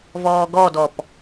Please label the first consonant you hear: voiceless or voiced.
voiced